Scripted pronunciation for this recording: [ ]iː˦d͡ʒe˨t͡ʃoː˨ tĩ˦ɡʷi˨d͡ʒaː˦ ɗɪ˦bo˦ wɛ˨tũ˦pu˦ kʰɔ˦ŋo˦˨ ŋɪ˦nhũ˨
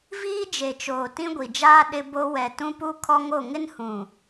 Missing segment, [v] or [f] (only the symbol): v